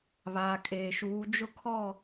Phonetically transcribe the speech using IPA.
βaː˨kʼeː˨ʃuː˨˦ d͡ʒʊ˦kʰɔ˦˨

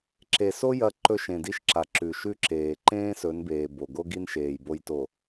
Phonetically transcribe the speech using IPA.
ǁe˨so˦ jɐ˦ǃɵ˦ ʃẽ˨di˦ʃǁa˨ ǁʉ˨ʃʉ˦ǁeː˨ ǃẽː˦sɵ˨˦nbeː˨ bo˨ ɡo˦ɡi˦nʃeː˨j bo˦jto˨

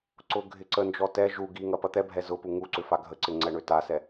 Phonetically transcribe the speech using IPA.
ǀʊ ɡʱɪǀənd͡ʒɔ tɛ ʒu ɡiŋɐ pɐt̪ɛbʱɛ zʊpu ŋuǀʏ faɡʱəǀɪ ŋ͡ǀɛɳøtasɛ

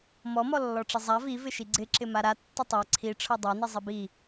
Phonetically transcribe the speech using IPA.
mɔmɔlːɔ ʈ͡ʂɪzˤa vivɪ ʃiɡ͡ǀɪ ǁɪmaɾa tːɪtˤa ǀʰi ʈ͡ʂʰɔdˤani zˤibi

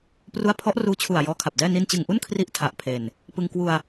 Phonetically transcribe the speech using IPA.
pru˦˥a̯pʰɔ˦˥ʔruː˧t͡ɕʰu˨˩a̯ jɔː˦˥kʰa˨˩p̚dɛː˥˩ ni˧nt͡ɕɯ˨˩ŋʔu˥˩n kʰri˥˩ʔtʰa˨˩ʔpʰe˨˩n | pɯ˧ŋ kwu˧a̯

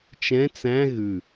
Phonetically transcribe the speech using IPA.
t͡ʃɛ̃ t͡sæ̃ ɣʉ

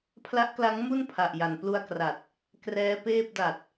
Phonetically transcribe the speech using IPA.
pʰla˦˥ʔkla˦˥ŋ mu˥˩n pʰa˨˩ʔja˨˩nplu˧a̯kra˨˩t̚ | krɛː˦˥peː˥˩p̚ da˨˩t̚

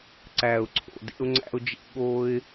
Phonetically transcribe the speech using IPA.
ǀæ˨ʊ̯ǀʰo̰˨dḛ˦ʊ̯ ŋ͡ǀæ̰˦ʊ̯d͡ʒḛ˦ ɠo˦ɪ̯

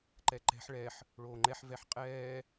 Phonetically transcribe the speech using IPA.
ǃɛǃɛ̤ħ ɭɛħ | ɭoːŋ͡ǃɛħ vɛħqʼɛː

